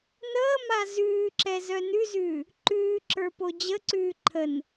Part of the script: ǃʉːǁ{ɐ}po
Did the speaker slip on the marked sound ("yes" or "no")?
yes